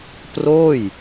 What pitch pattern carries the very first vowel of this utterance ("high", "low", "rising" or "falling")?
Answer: falling